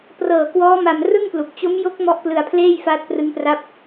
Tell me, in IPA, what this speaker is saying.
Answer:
p r ɤː˨˩ k w ɔː˦˥ m a˧ m r ɯ˥˩ ŋ p l u˨˩ k̚ t͡ɕ o˦˥ m j o˦˥ k̚ m ɔ˦˥ ʔ p l ɯ˧ a̯ pʰ l eː˥˩ j f aː˦˥ t̚ p r ɯ˦˥ ŋ p r a˦˥ p̚

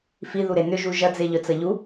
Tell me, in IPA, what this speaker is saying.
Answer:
f i ð u ɾ e n ʏ ʒ u ʒ ɐ d͡z e ʎ œ t͡s ɐ ʎ u

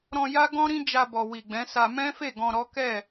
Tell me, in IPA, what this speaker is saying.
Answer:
ɾ ɔ̃˧ j a˦ ɡ ɔ̃˦ ɾ ĩ˦ d͡ʒ a˧ b ɔ˨ w i˨ ɡ͡b ɛ̃˨˦ s a˧ m ɛ̃˦ f e˦˨ ɡ ɔ̃˧ ɾ ɔ˦ k ɛ˦˨

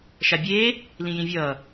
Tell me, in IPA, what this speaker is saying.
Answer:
ʃ a bʲ eː | l ĩ j ĩ vʲ ʌː

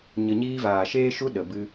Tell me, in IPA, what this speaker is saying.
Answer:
ɲ ə˧ ɲ iː˦ v aː˨ ʃ eː˦ ʃ u˦ ɗ ə˨ b ɨ˧

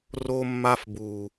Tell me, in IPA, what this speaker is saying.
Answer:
r o˧ mː a˧ f b uː˨

